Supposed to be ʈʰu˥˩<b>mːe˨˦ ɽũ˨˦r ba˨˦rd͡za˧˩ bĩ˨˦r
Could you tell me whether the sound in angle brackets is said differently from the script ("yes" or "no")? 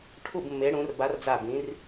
no